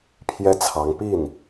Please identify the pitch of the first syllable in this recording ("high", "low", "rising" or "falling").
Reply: high